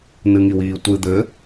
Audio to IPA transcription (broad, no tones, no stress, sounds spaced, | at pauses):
n ɨ ŋ i w iː tʷ ɨ d̪ ɘ